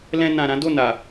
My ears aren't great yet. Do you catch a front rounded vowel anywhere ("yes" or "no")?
no